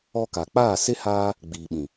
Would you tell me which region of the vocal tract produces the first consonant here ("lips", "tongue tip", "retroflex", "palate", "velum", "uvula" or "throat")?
velum